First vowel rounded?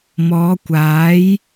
yes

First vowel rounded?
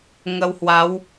no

